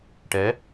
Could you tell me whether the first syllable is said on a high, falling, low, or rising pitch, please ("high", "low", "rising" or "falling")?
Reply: rising